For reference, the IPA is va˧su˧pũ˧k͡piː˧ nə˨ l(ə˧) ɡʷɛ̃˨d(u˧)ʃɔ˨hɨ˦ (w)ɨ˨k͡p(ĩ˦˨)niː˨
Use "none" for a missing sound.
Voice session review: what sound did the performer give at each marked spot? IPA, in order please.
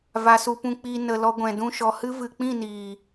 ɔ˧, ũ˧, v, ĩ˦˨

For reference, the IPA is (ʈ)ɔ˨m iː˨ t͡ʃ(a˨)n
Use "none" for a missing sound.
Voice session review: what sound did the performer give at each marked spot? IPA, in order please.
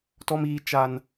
t, a˨

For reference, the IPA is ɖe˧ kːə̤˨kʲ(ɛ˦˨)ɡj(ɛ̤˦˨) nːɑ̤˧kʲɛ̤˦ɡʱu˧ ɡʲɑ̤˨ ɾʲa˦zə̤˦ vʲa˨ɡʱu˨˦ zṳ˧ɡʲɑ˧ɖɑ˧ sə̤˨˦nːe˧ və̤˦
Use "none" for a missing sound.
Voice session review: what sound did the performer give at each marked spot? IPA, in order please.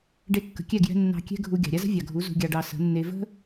ɛ˦˨, ɛ̤˧

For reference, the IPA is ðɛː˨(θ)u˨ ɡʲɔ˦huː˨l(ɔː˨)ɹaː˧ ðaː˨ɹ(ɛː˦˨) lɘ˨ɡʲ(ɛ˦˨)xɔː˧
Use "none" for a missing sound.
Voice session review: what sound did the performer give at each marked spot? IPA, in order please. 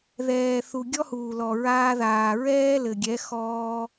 θ, ɔ˨, ɛː˦, ɛ˨˦

